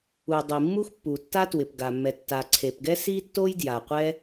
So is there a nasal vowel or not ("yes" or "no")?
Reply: no